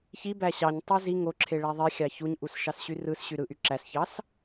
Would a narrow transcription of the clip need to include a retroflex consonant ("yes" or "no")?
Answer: yes